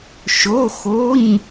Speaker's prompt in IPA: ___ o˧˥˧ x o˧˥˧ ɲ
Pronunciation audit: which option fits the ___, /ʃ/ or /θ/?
ʃ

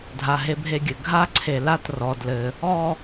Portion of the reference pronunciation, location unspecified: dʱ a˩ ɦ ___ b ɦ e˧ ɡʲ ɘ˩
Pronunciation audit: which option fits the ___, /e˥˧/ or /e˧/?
e˧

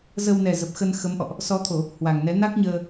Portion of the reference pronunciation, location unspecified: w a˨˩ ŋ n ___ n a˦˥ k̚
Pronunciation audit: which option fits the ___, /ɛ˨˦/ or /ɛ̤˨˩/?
ɛ˨˦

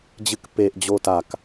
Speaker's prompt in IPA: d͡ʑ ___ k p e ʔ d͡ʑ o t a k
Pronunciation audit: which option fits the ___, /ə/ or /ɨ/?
ɨ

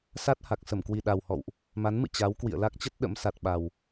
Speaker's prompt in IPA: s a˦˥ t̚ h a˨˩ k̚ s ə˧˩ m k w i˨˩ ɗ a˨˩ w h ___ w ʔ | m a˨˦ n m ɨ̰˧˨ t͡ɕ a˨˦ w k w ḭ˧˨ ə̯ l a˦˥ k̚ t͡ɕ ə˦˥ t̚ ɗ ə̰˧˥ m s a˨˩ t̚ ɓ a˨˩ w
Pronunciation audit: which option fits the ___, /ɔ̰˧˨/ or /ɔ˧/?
ɔ̰˧˨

